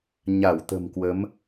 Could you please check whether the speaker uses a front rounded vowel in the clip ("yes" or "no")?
no